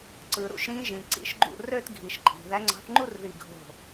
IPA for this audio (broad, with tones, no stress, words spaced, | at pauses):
ǀɯ˩ɾṵ˧˩ʃɾĩ˨˦ʒĩ˩ ǀḭ˨˦ʃɡ͡ǃṵ˧˩ rø˥˧tɡʱi˩ʃǃʼi̤˩ ðæ˨˦ŋ͡ǀɑ̤˨˦θŋ͡ǃu˥˧r ði˧˩ɡʱo̤˧˩